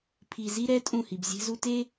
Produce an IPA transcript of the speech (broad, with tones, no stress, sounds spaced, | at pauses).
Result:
pʰ i˨ z i˦ ɾ ɛ˦ tʼ ũ˦˨ h i˨ b zʲ e̤˦ z u˦ t e˦